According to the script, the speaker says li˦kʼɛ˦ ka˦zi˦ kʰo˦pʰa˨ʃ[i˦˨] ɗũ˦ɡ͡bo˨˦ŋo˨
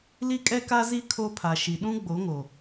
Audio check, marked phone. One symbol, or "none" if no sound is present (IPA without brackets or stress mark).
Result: i˨